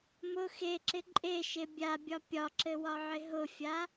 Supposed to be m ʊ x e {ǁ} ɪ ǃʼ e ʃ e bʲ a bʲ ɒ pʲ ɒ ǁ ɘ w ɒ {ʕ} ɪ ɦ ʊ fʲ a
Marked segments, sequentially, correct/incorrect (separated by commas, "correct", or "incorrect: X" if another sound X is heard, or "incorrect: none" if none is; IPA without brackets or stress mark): correct, correct